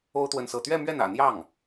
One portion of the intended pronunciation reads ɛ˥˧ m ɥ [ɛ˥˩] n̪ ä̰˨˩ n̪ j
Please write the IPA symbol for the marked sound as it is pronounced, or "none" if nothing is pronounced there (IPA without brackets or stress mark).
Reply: ɛ˥˩